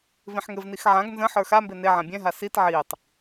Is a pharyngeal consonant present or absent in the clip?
present